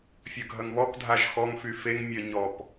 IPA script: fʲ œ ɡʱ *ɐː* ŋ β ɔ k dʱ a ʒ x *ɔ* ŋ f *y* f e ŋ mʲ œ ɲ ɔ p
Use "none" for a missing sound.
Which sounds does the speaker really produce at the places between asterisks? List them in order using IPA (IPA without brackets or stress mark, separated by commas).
ɐ, ɔ, y